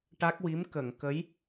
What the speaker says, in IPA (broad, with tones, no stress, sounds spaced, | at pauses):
ʈ a˦˥ k̚ w i˧˥ m k ə˨˩˨ ŋ k ə˧˥ j